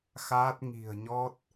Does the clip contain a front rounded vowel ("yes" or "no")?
no